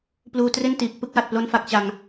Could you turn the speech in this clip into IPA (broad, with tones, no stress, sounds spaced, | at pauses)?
p l uː˧ t r e˥˩ n t iː˨˩ k̚ p ɯ˥˩ k̚ w a˨˩ t̚ p l o˥˩ n f a˥˩ k̚ t͡ɕ a˧ ŋ